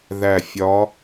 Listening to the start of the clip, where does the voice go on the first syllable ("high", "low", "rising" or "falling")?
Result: falling